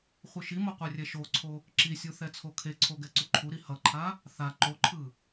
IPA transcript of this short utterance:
χʷɯʃimo qʷɛrʲɛʃoǀʰo | ǁisʲu θɛt͡sʰokʰeǀʰo ɡɛǀuǃʰuɾi hʌǃʰa | θa ǃoǃʰɯ

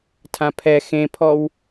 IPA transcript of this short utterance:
tʰãpʰɛ xẽpʰɔw

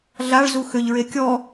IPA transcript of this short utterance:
ɮaɭ zuxʏʎɹe kʲɔ

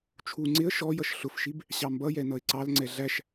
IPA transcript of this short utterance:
t͡ʃʰu ŋ͡ǀɪə̯ ʃɔjʌʃ ɬʊfʃib | ɕɑmbʌjɛ nʌɪ̯ǀɑlŋ͡ǀɛ ɮæʃ

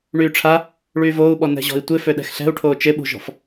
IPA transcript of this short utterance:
ɳyːʈ͡ʂʰa | ɭyːvoːu̯ɓɔ nɛ̤ʑɔ̤i̯tʷɪ føɗɛ̤xɬɛ̤u̯ʈʰoː t͡ʃɪɓṳʒɔ̤f

